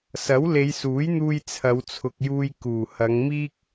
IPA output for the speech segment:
sɐ˨˥wle˨˧jsuː˨˥jn̪uː˧j t͡sʰɐ˨˧wt͡sʰʊ˨k̚juː˧j kuː˨˩hɐ˨˧ŋmiː˥k̚

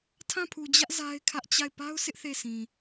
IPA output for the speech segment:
tʰã˦˨pʰu˨d͡ʑä˦ʔ za˦ɪ̯kʰä˦ʔ t͡ɕa˦˨ɪ̯ pa˦ʊ̯sʰɪ˦ʔ θe˦˨sĩ˨

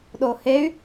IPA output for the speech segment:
ɗohey̯

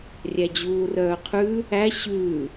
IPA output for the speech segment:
rʲæd͡ʑuːrœːqʰʉ | æ ɕʉ

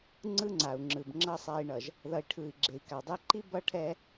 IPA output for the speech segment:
ŋ͡ǀɯ˦ŋ͡ǀa˨u̯ŋ͡ǁɯ˨b ŋ͡ǁʌ˨sˤa˨i̯ɳʌ˨ʒ | ðʌ˨i̯ʈʰɯ˨i̯ɡ͡ǁe˨i̯ ka˨dˤɛ˦ ǃi˦bʌ˦ʈʰɛ˦

